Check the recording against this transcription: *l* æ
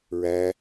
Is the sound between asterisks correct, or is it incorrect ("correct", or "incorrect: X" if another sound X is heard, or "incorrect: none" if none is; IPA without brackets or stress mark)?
incorrect: ɹ